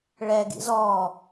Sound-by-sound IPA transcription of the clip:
ɭ ɛ ɡ ḭ z ɔ

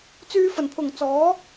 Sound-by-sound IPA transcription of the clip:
t͡s yː˧ f ɐ˨˩ n pʰ ʊ˨˩ ŋ t͡s ɔː˨˥

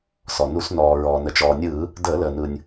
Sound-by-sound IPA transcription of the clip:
s ɔ˩ n u˧˩˧ s n ɔː˩ ɹ ɔː˩ n ə˩ t͡ʃ ɔː˩ nʲ ɯː˧˩˧ | d əː˧˩˧ l əː˩ n ɯː˩ nʲ

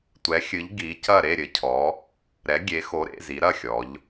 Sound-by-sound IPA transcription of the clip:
tʷ ɛ˩˧ xʲ ɨ˩˧ ʎ ɡ i˩˧ c ɐ˥˨ ɾ e˥˨ ɾʲ ɘ˩˧ cʰ ɔ˩˧ | ɾ ɛ˩˧ ɡʲ e˩˧ x o˩˧ ɾ ḛ˥˨ z i˩˧ ɾ ɐ˥˨ xʲ ɔ˩˧ ʎ

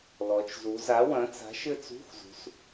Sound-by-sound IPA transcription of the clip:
l ɔ˩˧ t͡ʃ z u˩˧ z a˨˥ w ɐ̃˨˥ t͡s a̤˨˥ ʃ ɘ˥˨ t͡s ṳ˧˥˧ x z ṳ˩˧ s

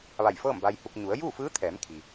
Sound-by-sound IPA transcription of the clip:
ʋ a˧˩ j f ɤː˥˨ m b a˧ j h u˧ k̚ ɲ u˩˧ ə̯ j uː˥˨ f ɯː˧˥ t̪ʰ ɛː˩˧ m kʰ i˩

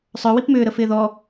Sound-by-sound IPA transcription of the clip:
sˤ œ w i p m ʏː ɾ ə f ɪː ð ɔ

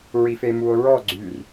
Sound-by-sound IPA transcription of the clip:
ɹ i f e m u o̯ ɹ ɔ ɡ͡ǀ y r

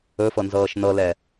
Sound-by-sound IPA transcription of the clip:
ɵ f ɤ n z ɤː ʃ n ɤ l ɛ

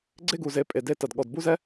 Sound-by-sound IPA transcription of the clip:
ɡ͡ǀ e˦ ɡ u˨ z e˧ pʼ e˨ d e˧ t ɐ˨ d ɠ ɔ˨ d b u˦ z ɛ˦

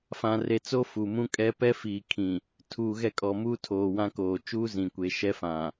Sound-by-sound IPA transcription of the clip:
f ã˨ r e˨ t͡s o˦ f u˨ m ũ˦ kʼ ɛ˦ p ɛ˦ f iː˨ kʰ ĩ˨ | tʰ uː˨ ɣ ɛ˦˨ kʼ ɔ˨ m uː˦ tʰ oː˨ w ã˦ k oː˨ t͡ʃ uː˦ z ĩ˨ kʷ e˨˦ ʃ ɛ˦ f ã˨

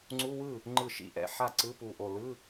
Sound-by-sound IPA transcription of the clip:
ŋ͡ǀ u˧˥˧ w ɯ˥˩ | ŋ͡ǃ ɯ˧˩ ʃ ḭ˥˩ ʔ ɛ̰˥˩ ħ a˥˩ ǀ ɯ˧˥˧ p u˧˩ ʔ o˧˩ l ɯ˧˥˧

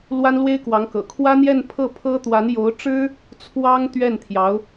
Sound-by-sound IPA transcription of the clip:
l w a˥ n l w e˥ ɪ̯ k w ɑ˧˥ ŋ k ɤ̰˨˩ kʰ w ä˥ n̪ j ɛ˥˧ n pʰ ɤ˥˩ pʰ ɤ˥ t̪ w a˧˥ n j o˧˥ ʊ̯ ʈ͡ʂ ɻ̩˥ | t͡sʰ w ɑ˥ ŋ t̪ ɥ ɛ˥˩ n t̪ʰ j ɑ˧˥ ʊ̯

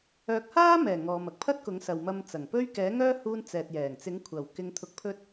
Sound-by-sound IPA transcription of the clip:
œː˨˥ k̚ h aː˥ m ɛː˨˩ ŋ ɔː˨ m ɐ˥ k̚ pʰ ɐ˥ t̚ k ʊ˨˥ ŋ s ɐ˨ w m ɐ˧ m t͡s ɐ˨˩ ŋ p ɵ˥ ɥ k ɛː˨˥ ŋ œː˥ h uː˧ n t͡s ɛː˨ t̚ j ɛː˨˩ ŋ t͡s ɪ˨˥ ŋ kʷʰ ɐ˨˩ w k ɪ˧ ŋ t̪ʰ ʊ˧ k̚ pʰ ɵ˥ t̚

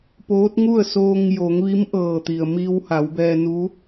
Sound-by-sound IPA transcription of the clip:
p oː˧˥ t̚ ŋ u˥˨ ə̯ s oː˧ ŋ j o˩˧ ŋ ʋ i˧˥ m ʔ ɤː˧˩ t̪ i˩ ə̯ m i˧ w h a˩˧ w b ɛː˧ n u˧˥

